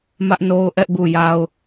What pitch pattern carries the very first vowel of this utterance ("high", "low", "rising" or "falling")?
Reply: high